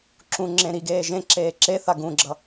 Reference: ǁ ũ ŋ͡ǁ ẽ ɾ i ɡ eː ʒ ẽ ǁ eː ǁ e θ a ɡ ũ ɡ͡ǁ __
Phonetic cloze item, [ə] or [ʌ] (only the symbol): ʌ